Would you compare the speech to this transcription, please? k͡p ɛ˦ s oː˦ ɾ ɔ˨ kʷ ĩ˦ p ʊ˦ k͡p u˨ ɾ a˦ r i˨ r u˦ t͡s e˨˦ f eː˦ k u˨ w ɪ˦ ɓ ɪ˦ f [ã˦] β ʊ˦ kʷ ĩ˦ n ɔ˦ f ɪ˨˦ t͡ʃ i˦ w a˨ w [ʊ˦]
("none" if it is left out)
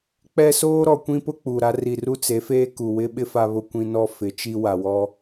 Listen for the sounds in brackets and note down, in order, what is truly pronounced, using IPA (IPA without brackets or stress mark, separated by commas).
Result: a˦, ɔ˦